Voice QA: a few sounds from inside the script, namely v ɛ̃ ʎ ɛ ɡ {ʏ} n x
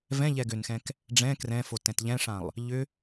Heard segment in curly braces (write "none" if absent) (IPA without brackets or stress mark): ʏ